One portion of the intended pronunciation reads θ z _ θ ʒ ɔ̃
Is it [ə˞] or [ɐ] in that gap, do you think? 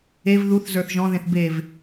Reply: ə˞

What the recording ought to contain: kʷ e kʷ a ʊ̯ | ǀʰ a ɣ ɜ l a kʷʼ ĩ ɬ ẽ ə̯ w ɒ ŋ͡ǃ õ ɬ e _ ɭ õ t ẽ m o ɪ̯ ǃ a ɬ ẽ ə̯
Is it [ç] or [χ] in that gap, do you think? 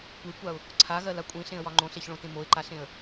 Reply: ç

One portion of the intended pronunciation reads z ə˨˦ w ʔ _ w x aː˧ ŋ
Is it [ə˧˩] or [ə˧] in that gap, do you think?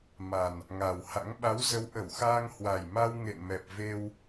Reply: ə˧˩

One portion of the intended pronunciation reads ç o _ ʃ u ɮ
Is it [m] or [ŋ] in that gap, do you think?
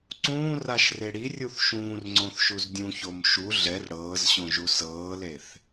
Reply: m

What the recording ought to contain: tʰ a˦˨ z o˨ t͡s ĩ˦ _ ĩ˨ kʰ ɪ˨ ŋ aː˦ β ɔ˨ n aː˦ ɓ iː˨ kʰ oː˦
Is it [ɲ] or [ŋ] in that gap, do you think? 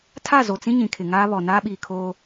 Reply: ɲ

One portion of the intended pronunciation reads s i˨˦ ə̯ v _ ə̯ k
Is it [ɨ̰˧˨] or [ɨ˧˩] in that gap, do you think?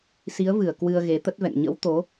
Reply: ɨ˧˩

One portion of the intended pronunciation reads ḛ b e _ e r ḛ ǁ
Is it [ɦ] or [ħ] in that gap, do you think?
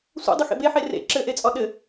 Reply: ħ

